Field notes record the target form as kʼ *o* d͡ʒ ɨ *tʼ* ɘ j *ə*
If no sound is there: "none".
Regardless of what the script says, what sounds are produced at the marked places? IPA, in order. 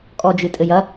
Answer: ɔ, tʼ, ɐ

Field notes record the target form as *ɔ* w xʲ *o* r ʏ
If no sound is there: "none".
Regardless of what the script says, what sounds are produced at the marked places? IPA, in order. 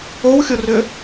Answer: o, o

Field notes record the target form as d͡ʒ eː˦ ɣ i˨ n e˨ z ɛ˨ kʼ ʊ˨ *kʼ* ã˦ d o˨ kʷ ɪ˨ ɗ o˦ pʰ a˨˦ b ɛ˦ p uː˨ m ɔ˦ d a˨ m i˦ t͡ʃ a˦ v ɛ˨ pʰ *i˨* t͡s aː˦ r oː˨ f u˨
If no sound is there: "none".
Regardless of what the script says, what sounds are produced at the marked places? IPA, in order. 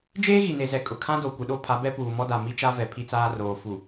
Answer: kʰ, i˦

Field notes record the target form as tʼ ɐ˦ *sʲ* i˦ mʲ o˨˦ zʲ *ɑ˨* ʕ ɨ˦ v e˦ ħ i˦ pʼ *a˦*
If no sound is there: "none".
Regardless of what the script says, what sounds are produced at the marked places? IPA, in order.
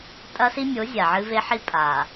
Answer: s, a˨, a˨

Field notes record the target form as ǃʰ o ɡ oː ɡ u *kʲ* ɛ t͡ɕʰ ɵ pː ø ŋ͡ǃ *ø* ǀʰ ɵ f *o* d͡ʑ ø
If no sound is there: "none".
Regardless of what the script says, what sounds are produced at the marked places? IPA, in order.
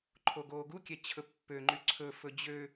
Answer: kʲ, y, ɵ

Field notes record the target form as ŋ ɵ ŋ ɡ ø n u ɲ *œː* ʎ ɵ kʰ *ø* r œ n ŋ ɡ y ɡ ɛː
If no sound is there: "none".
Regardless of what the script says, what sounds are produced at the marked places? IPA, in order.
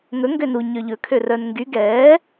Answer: œ, ø

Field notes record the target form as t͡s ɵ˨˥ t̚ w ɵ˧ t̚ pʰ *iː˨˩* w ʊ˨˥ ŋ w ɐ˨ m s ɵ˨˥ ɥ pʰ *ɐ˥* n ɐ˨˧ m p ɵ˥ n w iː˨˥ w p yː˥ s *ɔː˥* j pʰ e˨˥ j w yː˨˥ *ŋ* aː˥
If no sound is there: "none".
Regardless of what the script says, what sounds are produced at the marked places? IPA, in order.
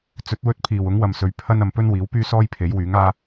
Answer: iː˨˩, ɐ˥, ɔː˥, ŋ

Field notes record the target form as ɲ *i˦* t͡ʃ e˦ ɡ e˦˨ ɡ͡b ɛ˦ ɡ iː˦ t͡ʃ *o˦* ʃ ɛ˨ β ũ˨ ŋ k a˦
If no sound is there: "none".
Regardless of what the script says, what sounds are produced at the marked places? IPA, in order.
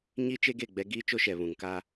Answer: i˦, o˦

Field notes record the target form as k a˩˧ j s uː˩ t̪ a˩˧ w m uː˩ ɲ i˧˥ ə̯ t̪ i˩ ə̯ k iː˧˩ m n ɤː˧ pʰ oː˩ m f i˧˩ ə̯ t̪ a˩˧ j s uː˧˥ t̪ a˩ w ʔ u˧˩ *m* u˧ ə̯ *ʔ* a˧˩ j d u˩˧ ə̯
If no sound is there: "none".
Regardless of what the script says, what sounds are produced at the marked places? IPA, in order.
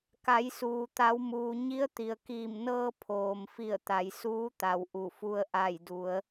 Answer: f, ʔ

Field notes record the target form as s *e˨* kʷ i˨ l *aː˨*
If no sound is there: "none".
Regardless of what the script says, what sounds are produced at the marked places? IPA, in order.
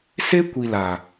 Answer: e˦, aː˨

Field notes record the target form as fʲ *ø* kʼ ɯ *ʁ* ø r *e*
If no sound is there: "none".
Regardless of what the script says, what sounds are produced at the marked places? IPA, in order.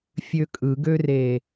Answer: ø, ɡ, e

